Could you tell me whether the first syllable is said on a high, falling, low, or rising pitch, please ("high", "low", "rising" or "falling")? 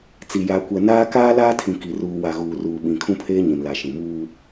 low